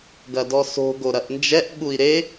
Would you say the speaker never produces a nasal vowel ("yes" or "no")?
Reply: yes